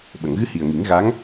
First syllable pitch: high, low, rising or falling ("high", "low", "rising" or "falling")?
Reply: low